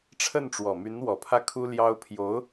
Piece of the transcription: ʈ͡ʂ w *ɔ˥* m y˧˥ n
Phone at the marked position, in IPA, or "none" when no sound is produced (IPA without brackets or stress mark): ɔ˨˩